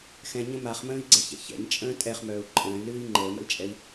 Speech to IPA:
xɛ̃ɲə̃ maχmə̃ːi̯ɡ͡ǀɛçɛ̰ çɛ̰ɲt͡ʃʼə̃ː tʼɛχmœːu̯ ǃʼə̃ːy̯lɨːi̯ ŋ͡ǃəːmə̰lt͡ʃʼɛi̯

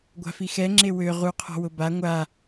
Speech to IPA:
ɡʷa̤fixɛ ŋ͡ǁewø ʁu qʰɔ̤wʊba ŋʷa

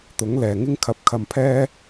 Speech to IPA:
t̪ʊ˨˥ŋlɛː˨ŋɪ˥ŋkʰɐ˧p̚ kʰɐ˧mpʰɛː˥

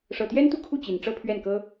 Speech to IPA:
ʂɤ˨˩t̪jɛ˥nt̪u˥˧kʰu˥˩ t͡ɕi˨˩nʈ͡ʂɤ˥pʰɥɛ˥˩nkɤ˥

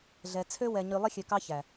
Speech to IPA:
ɮɛ˨t͡sʰø˦ wɛ˨ɲy˨ lˠi˦xʲø˨kɑ˦ çæ˨

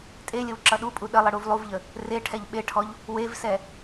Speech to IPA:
tʼelʲəw ǁʌɗupʼu ɗəlˠə ɽuvlˠuvʎə | re ʈʰɛʎɓeʈʰɔʎ | wevsɛ

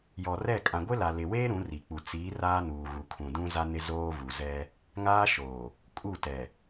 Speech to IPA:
jɔ˨rɛ˦˨ kʼã˨ɡʷɪ˦ la˨lɪ˨weː˦ ɾũ˨˦ri˨k͡pu˨ t͡siː˨˦ raː˦nuː˨ɣu˨ kʰũ˨dũ˦ za˦nɪ˦ zoː˦vu˨ zɛ˦ | ŋaː˦ʃoː˨ | kʼu˦˨tɛ˨

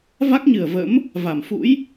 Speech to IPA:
va˦˥k̚ɲɨ˨˩ə̯və̰˧˥m | va˧˩mfṵ˧˥j

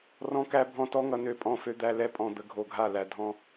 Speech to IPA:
rɔ̃˦kæ˦bʱɔ̃˦tɔ˦ ŋʌ˦nø˦pʼɔ̃˦ fø˦d̪æ˦ lɛ˦ pʼɔ̃˧d̪ə˧ ɡʱo˧ɡʱa˦˨ læ˧dʱɔ̃˦

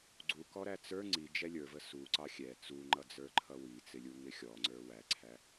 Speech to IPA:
ɡ͡ǀukɔɾæ t͡sə˞ ŋ͡ǀid͡ʒɛ lʲə˞və suǀɑ xʲɛ t͡suŋ͡ǃʌd͡zə˞ǃʰʌ wit͡sɪlʲuŋɪ xʲɔŋ͡ǀə˞ wæǀʰæ

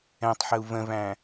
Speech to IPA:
ɛ̃tˤħəu̯ və̃væ̃

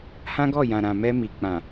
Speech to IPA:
hã˦ɡɔ˦˨jã˨ ɾã˨mɛ˧mi˨ k͡pã˨

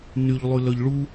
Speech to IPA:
nyʎlˠylœʎ ɭu

